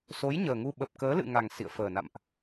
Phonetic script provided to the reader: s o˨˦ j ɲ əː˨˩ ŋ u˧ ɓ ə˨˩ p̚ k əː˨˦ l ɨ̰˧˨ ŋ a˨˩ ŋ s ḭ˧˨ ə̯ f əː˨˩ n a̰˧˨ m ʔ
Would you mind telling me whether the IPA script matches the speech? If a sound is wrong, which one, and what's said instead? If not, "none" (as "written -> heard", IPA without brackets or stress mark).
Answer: none